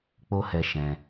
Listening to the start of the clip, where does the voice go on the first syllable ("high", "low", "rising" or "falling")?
high